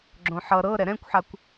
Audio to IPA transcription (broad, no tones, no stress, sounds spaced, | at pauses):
ɡ͡ǁ õ ħ ʌ ɾ ɤ ɾ ɛ ɾ ɛ̃ kʷ ħ a kʷ